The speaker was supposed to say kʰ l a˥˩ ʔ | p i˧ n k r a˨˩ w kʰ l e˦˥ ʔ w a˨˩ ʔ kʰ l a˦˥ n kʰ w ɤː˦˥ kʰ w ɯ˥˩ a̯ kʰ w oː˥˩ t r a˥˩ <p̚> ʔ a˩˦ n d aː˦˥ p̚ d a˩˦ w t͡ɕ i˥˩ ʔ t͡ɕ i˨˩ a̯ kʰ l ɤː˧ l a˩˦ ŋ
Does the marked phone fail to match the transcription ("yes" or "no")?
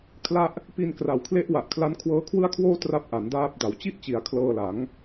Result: no